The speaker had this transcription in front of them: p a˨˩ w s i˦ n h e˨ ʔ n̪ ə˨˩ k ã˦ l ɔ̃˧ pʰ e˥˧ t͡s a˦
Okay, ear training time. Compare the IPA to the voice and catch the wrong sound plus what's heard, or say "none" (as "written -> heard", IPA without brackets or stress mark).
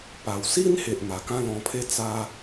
ə˨˩ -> a˨˩